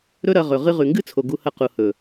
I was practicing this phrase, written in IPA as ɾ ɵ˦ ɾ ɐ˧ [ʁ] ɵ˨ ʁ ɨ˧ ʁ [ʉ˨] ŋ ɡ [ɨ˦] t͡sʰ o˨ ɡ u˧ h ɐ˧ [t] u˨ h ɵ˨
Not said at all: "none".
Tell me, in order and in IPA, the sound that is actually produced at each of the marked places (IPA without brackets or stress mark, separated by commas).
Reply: ʁ, ʉ˨, ɨ˦, q